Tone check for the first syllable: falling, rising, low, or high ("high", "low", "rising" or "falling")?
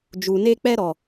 low